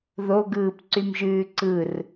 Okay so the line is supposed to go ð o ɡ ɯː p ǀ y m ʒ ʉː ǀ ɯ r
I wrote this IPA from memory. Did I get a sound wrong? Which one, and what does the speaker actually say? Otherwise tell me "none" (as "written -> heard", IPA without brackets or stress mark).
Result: none